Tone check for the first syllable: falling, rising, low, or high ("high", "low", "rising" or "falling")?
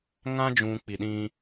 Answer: high